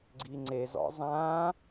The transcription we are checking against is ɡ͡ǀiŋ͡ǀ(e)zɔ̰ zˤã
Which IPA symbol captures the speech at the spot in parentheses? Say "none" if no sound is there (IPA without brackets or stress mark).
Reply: e